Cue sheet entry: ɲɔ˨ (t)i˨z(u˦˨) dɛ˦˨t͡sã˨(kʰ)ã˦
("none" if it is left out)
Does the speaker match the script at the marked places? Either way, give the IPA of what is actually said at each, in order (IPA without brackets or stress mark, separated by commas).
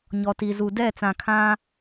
t, u˨, kʰ